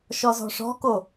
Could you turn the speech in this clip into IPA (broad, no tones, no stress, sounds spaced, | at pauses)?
ʃ ɔ z ɔ̤ ʂ ɔ̤ k o